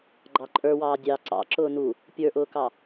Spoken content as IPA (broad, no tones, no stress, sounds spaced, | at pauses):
ɡ͡ǃ ɑ ǃʼ ə˞ w ɑː dʲ ɑ ǀ ɑ̰ ǁ ʊː n u | pʲ ə˞ ʔ ʊː k ɑ